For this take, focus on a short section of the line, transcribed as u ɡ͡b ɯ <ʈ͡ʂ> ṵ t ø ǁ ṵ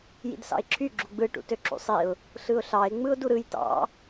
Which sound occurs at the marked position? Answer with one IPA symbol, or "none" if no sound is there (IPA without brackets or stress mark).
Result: ʈ